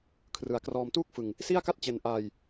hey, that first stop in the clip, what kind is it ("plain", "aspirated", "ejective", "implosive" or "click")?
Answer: aspirated